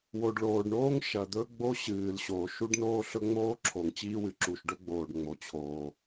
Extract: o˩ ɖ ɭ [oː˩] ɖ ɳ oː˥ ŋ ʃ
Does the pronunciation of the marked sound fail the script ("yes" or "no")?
no